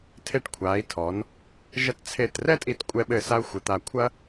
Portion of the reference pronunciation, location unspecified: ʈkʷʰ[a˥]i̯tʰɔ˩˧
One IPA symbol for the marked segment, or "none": a˩˧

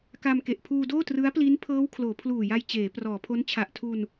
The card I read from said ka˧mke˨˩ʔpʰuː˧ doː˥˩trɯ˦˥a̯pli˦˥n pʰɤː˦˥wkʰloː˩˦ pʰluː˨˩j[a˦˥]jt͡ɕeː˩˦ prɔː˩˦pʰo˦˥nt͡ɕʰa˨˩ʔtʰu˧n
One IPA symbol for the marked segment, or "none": a˧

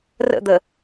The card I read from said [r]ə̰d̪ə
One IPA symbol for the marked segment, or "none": r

